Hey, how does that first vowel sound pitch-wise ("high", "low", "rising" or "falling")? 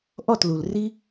falling